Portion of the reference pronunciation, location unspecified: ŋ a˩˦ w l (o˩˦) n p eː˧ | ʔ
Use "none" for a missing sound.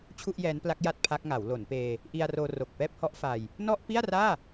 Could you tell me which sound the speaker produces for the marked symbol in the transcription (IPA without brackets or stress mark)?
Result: o˩˦